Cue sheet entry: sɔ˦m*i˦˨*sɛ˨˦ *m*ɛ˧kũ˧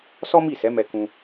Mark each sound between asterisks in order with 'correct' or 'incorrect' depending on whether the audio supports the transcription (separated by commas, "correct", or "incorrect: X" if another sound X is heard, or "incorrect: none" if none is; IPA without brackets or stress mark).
correct, correct